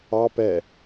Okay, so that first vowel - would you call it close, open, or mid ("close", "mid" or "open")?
open